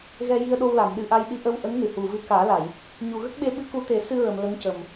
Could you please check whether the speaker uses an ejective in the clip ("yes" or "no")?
no